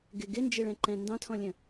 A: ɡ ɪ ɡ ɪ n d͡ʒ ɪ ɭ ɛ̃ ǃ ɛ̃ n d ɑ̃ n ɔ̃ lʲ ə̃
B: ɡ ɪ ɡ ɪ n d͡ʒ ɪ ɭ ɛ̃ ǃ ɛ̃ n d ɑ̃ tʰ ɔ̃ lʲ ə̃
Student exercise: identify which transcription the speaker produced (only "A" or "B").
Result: B